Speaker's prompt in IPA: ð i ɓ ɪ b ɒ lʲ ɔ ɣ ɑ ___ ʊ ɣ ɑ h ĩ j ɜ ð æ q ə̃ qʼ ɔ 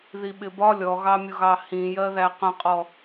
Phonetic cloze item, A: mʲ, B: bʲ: A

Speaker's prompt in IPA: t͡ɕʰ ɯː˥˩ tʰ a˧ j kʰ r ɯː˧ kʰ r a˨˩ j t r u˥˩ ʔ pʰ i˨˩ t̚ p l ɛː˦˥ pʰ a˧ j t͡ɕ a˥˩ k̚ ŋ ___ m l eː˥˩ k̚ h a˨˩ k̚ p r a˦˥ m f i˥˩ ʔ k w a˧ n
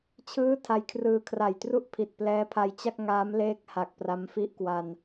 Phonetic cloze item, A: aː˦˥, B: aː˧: A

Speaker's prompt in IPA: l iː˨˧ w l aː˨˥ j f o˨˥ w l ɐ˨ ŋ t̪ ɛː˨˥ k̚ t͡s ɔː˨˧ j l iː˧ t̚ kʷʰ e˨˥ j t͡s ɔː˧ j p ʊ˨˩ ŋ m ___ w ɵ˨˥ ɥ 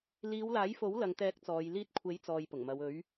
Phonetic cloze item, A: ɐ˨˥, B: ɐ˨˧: B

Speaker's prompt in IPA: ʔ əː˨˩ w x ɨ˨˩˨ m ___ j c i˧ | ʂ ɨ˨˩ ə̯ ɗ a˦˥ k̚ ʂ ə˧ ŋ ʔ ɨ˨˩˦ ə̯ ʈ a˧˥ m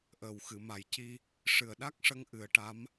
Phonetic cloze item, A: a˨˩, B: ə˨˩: A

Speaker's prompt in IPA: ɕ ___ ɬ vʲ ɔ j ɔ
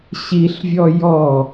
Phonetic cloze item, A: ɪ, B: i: B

